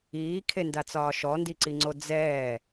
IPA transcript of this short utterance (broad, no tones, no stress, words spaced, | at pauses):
iːkʰendat͡sɒː ʃɔndiǀiŋ͡ǀo d͡zɛː